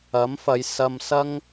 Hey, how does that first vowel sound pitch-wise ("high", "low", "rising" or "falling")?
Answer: rising